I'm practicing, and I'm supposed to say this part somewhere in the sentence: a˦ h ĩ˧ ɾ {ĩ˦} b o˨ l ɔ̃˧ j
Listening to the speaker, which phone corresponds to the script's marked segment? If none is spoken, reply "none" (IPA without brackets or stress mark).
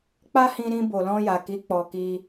ĩ˧